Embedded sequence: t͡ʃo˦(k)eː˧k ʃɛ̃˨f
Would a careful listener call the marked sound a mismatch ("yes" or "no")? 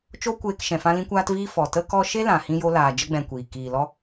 yes